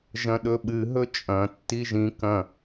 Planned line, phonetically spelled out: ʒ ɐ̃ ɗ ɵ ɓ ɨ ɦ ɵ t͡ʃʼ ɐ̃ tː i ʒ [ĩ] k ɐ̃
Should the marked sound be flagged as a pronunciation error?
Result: no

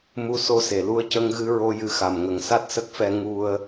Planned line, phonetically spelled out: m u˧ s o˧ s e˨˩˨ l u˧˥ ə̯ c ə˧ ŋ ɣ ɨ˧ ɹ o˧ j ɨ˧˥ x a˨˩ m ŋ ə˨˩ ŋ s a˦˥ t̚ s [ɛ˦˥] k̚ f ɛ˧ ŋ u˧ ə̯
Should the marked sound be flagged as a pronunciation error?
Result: yes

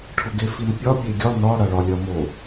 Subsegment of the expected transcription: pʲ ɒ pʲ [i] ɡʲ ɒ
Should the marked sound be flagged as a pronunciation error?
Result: yes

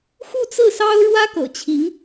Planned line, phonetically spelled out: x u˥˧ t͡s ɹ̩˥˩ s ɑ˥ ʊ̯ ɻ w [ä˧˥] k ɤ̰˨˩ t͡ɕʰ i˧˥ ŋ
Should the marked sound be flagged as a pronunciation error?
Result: yes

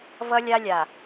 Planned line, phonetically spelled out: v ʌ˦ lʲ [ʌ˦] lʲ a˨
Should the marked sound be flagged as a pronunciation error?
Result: yes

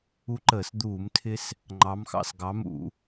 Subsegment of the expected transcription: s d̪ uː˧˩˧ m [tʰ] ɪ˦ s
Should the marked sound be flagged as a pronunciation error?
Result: no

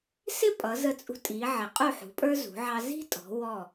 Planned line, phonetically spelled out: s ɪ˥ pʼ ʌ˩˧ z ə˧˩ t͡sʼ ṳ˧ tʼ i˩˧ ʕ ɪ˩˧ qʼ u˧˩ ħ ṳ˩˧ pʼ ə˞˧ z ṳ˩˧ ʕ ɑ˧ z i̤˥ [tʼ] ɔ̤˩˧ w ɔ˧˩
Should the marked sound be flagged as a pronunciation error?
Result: no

